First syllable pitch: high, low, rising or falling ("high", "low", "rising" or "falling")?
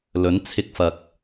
rising